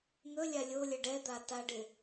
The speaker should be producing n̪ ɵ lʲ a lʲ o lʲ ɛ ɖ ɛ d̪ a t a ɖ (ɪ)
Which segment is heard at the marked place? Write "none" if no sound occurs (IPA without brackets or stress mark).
ɪ